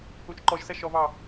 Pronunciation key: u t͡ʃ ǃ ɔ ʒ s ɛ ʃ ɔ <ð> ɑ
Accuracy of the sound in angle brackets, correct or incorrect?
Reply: incorrect